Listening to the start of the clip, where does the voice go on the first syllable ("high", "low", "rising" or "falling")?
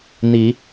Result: rising